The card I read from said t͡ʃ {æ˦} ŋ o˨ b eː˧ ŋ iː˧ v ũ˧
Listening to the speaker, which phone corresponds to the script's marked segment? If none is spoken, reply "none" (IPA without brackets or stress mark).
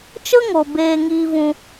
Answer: ə˦